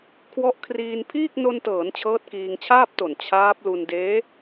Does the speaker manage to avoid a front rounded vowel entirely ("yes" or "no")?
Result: yes